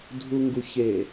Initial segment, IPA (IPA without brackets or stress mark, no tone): dʱ